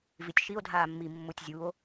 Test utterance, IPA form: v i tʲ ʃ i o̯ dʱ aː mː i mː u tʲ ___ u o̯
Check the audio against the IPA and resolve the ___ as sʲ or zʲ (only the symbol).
zʲ